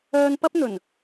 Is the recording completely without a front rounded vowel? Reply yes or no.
no